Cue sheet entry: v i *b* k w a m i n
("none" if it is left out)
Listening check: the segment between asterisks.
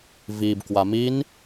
b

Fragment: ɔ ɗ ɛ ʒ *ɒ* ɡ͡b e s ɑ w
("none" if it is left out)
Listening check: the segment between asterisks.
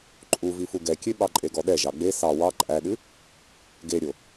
ɑ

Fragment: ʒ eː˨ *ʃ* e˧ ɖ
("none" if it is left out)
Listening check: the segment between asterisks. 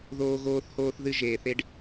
θ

